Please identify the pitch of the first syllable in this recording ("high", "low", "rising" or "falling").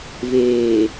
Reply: low